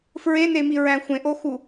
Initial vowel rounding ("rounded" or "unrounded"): unrounded